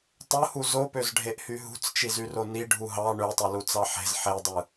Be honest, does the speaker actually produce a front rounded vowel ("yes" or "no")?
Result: yes